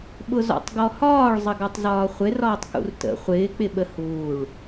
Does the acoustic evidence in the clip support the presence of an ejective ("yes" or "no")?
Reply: no